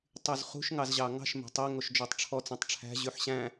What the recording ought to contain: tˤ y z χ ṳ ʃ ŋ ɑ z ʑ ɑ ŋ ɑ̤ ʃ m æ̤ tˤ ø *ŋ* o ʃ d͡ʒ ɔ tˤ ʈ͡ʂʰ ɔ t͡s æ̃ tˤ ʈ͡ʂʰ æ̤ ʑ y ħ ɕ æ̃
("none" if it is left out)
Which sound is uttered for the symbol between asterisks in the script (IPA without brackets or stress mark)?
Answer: ŋ